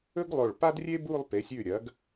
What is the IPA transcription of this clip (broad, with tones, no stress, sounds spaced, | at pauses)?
ɵ˥ ɡ lˠ o˧˩ ɭ p a˥ d rʲ e˥ b u˥˧ lˠ p e˩˧ sʲ ʉ˧˩ ɾʲ ɐ˩˧ ɡ